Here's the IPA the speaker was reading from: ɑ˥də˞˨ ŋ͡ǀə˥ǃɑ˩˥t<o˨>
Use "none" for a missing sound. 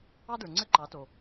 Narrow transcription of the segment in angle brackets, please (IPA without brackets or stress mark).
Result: o˨